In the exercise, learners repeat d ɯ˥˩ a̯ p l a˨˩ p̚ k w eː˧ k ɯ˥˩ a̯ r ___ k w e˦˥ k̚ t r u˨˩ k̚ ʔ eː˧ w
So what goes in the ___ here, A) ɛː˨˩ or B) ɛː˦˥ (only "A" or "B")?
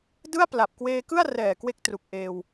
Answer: A